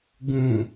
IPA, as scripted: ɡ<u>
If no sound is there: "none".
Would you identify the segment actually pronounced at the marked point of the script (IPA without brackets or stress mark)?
ũ